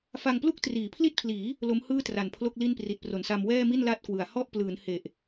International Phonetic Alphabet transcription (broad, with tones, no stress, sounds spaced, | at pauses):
f a˧ ŋ p l u˥˩ k̚ t r iː˩˦ pʰ l i˥˩ t̚ pʰ l iː˩˦ | l o˦˥ m h ɯː˥˩ t r a˨˩ n pʰ l o˥˩ k̚ l i˥˩ n p r i˨˩ t̚ p r o˨˩ n s a˧ m w ɛː˥˩ m i˥˩ n l a˥˩ t̚ k w ɯ˩˦ a̯ h ɔ˥˩ ʔ p l ɯː˩˦ n h e˨˩ ʔ